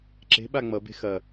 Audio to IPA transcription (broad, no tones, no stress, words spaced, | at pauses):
ǁe̤ ɓaŋ͡mʌbe̤ xɐ